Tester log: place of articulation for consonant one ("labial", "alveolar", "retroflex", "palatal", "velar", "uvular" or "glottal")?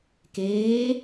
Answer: velar